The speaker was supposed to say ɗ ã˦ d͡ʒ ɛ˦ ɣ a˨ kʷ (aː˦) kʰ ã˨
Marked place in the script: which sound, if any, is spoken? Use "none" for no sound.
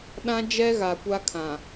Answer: a˦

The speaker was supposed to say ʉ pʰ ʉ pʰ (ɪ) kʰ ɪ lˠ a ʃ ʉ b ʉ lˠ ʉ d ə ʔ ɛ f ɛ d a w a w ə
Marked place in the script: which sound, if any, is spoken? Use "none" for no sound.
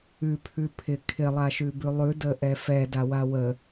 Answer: ɪ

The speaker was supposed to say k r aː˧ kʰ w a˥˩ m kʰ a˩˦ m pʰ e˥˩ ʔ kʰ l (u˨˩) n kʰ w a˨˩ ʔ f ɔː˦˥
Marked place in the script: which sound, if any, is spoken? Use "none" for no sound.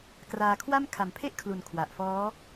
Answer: u˨˩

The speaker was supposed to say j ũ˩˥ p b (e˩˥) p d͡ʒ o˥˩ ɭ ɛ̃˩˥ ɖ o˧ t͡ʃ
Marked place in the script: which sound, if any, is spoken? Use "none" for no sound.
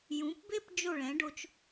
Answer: e˥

